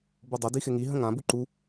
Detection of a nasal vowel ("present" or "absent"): present